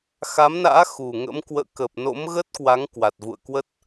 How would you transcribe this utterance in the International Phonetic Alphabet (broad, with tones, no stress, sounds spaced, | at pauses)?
x a˨˦ m n a̰ː˧˥ x u˨˩ ŋ ə̰˧˥ m k w ə̰ː˧˨ k ə˨˩ p̚ n o̰˧˥ m ɣ ə˦˥ t̚ k w a˨˦ ŋ k w a˨˩ t̚ v ṵ˧˨ ə̯ k w ə˦˥ t̚